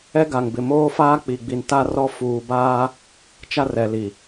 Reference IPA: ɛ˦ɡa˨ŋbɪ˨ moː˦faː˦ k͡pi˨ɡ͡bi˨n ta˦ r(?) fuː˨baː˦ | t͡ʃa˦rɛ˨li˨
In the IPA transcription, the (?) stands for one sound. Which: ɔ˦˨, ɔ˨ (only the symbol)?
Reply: ɔ˦˨